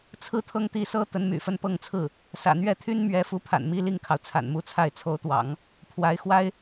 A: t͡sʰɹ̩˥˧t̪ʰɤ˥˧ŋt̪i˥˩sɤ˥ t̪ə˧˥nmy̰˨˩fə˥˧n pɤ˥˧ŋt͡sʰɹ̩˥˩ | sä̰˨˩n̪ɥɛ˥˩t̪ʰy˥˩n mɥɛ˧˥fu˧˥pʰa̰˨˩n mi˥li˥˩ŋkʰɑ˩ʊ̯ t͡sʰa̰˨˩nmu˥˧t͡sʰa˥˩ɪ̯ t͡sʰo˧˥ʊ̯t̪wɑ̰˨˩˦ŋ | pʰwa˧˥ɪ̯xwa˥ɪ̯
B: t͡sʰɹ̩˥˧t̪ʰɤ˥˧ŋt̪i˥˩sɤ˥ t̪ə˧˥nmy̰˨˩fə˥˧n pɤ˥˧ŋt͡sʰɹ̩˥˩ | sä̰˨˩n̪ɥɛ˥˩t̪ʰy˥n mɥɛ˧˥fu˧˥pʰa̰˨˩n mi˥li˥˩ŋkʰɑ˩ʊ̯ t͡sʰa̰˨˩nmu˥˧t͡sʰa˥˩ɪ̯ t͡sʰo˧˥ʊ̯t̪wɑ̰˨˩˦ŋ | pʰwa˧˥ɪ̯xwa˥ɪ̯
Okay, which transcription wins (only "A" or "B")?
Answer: B